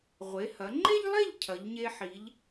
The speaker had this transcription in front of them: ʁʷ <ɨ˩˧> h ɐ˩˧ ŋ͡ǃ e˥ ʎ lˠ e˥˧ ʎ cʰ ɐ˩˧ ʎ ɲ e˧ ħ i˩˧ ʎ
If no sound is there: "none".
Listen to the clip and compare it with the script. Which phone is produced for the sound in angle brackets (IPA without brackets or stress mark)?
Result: e˩˧